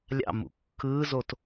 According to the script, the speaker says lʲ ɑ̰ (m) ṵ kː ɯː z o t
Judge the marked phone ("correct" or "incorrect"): correct